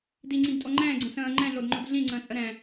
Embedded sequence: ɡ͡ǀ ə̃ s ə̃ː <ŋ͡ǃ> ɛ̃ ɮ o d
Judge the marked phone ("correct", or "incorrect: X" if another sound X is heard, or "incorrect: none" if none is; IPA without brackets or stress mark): correct